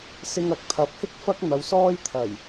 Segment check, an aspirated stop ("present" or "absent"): present